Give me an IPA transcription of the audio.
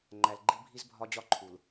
ŋ͡ǃæ˨lɡ͡ǃi˦ bʱi˦z bʱɒ˦d͡ʑɒ˦ ǃʰu˨l

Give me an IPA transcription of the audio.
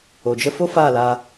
o˨d͡ʒə˦ fo˦ faː˦˨laː˧

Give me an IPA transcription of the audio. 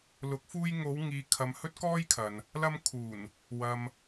lʊ˨˥k̚fuː˧jŋo˨˧w ŋiː˨ kʰɐ˨˧mhɵ˥t̚kɔː˥j kʰɐ˨n | lɐ˥m kʰuː˨˩n | wɐ˨m

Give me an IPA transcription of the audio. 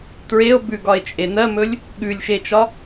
tɹeo̯ bʉɡɒe̯t͡ʃʼe nɜmɵlʲ | ɠʉlʲʃet͡ʃɒ

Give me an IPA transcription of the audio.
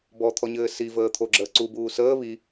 bɔt̪ʰɔɲɘː sivəː t̪ʰoɡ͡ǁəː ǀubuː səː βi

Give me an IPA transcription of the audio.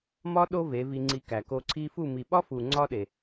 mɒ˦ ɗo˦ ve˨˦vi˧ŋ͡ǀi˧ kæ˨ko˧ ǀʰi˧fu˦˨mi˨ ɓɒ˦fu˨ ŋ͡ǀɒ˦ɗe˨

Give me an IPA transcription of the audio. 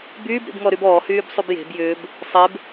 byːb ɾḭbŋɔɾybɔː hyːbsˤybje̤b jʏːb | sˤeb

